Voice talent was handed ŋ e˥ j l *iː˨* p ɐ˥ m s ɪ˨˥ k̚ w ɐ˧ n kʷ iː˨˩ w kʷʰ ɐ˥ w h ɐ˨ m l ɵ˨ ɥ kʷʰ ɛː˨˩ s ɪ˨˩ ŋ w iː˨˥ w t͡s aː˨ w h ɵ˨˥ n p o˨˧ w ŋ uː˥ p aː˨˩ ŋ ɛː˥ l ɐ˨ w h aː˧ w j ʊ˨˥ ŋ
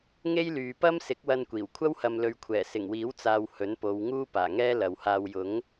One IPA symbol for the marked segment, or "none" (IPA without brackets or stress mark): yː˨